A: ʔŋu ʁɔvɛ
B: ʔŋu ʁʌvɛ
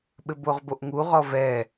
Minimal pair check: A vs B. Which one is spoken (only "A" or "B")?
A